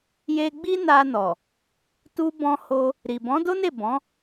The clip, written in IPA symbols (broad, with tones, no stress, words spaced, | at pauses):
je˧ ɡ͡bi˦na˧nɔ˨ | tu˧bɔ̃˧ho˧ | ɾi˨ bɔ̃˨˦do˦ne˦˨ bɔ̃˨˦